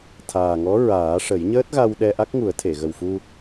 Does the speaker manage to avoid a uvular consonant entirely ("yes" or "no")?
yes